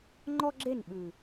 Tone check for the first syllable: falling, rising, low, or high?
high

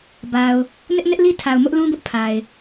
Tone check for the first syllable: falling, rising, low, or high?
low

